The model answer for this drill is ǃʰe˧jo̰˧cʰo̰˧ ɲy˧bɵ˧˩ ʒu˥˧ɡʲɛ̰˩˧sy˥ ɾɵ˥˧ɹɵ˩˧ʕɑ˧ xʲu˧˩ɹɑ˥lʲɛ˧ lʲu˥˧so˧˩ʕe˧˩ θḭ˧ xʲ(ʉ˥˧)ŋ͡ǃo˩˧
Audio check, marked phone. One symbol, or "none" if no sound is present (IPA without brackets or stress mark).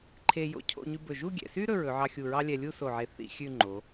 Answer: ʉ˥˧